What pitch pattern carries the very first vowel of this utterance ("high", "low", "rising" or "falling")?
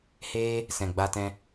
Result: high